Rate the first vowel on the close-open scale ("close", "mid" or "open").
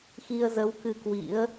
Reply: close